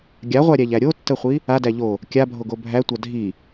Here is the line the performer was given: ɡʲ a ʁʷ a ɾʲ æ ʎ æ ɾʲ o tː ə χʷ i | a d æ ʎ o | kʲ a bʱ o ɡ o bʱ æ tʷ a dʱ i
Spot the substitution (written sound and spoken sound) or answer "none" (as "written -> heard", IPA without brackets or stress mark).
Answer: none